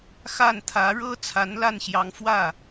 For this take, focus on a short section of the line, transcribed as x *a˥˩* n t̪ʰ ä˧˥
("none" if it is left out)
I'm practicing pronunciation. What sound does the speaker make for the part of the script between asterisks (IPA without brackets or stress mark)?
a˥˩